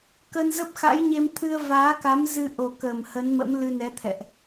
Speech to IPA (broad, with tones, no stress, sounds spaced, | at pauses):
k ə˧ n z ə˦˥ p̚ x a̰˧˥ j ɲ e˧ m t̪ʰ ɨ˧ ə̯ v aː˨˦ k a˨˦ m z ɨ˧ ʔ o˨˩ k ə˨˩ m h ə˨˦ n m ə̰˧˥ m l ɨ˧ n ɛ˨˦ t̪ʰ ɛ̰˧˨ ʔ